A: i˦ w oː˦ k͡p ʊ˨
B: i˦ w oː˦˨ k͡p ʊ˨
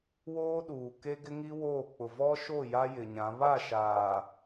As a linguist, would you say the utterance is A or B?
B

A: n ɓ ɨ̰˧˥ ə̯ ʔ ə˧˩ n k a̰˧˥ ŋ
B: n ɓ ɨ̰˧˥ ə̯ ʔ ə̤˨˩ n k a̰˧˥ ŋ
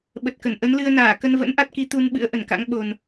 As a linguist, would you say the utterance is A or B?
A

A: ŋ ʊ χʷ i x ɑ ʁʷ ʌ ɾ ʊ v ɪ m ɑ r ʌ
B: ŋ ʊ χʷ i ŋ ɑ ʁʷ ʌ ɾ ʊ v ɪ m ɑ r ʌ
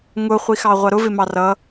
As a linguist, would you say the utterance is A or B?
A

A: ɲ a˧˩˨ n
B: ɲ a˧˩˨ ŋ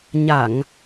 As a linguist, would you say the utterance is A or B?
B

